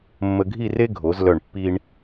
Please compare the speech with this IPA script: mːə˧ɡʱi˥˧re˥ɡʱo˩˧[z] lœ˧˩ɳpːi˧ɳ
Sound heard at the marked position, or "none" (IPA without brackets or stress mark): z